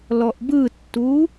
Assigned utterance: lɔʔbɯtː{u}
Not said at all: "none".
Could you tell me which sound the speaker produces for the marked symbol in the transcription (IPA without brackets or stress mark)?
u